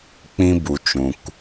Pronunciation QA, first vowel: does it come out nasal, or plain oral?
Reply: nasal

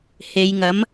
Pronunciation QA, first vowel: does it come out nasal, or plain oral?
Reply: oral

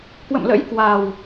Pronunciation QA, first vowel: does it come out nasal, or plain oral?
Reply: oral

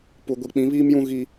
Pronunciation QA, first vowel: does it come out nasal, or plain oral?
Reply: oral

